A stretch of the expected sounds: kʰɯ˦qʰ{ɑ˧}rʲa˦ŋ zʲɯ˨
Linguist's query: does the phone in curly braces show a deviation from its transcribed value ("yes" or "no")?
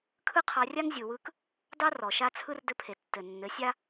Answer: no